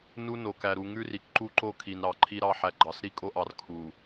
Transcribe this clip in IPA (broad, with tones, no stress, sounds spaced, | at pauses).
n u˦ n o˨ k æ˨ ɾ u˨ ŋ ʉ˦ r i˨ k ǃ u˦ ǃ o˦ kʰ i˨ n ɾ ɑ˨ ǃʰ i˦ ɾ ɑ˦ ħ æ˨ ɡ͡ǃ ɑ˨ s ɾ i˦ kʼ o˦ ʔ ɑ˨ r kʰ u˨